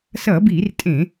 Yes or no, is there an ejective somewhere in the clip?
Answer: yes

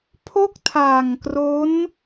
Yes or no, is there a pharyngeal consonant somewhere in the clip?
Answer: no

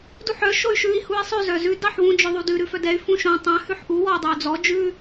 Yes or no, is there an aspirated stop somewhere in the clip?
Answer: no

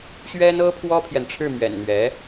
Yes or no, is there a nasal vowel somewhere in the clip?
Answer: no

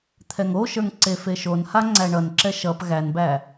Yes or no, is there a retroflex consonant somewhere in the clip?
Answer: yes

